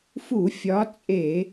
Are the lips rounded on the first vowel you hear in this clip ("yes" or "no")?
yes